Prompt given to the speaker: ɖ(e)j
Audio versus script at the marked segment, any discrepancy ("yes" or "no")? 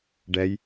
yes